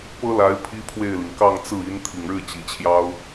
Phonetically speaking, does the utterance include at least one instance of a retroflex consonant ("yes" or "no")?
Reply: yes